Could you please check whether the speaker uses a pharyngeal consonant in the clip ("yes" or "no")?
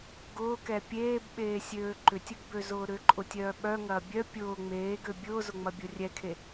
no